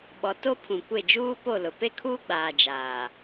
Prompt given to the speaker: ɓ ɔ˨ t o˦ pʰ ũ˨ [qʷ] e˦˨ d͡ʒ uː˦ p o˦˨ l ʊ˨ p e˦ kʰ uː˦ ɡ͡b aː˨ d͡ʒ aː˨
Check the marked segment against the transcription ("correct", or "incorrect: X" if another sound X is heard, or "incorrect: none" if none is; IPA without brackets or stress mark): incorrect: kʷ